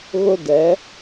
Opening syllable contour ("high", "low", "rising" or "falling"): high